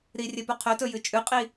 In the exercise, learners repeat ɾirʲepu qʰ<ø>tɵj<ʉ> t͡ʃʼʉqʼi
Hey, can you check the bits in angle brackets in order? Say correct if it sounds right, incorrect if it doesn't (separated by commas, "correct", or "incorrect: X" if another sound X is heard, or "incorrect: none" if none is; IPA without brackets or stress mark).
incorrect: ɵ, incorrect: ɨ